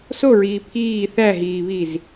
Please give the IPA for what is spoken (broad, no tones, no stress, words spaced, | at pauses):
soɹiː pʰiː θæɦiːβiz